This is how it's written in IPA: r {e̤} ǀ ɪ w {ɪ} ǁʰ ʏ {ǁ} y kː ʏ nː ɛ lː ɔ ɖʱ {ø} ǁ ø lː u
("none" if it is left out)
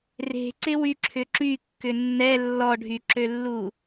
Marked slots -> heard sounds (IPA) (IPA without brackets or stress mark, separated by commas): e̤, y, ǁ, y